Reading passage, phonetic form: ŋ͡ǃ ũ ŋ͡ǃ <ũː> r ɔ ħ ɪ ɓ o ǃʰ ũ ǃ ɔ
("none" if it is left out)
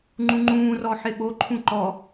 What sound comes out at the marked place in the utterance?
ũː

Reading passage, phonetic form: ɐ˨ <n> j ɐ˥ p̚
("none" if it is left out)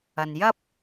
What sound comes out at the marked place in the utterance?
n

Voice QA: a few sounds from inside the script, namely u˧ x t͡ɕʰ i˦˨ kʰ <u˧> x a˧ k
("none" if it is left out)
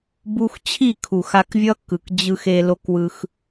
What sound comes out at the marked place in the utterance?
u˨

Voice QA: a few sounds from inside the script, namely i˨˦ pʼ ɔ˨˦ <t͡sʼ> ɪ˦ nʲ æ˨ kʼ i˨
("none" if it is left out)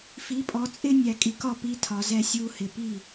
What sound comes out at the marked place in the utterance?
t͡sʼ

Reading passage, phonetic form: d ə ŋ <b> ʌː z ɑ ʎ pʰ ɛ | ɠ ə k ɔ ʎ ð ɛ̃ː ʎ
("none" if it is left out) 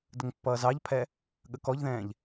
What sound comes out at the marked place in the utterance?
pː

